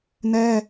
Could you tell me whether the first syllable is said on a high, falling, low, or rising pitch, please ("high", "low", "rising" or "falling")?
high